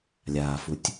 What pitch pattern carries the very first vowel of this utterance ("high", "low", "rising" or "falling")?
low